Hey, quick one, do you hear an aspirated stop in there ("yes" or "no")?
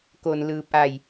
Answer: no